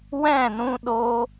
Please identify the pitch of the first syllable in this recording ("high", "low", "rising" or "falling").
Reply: falling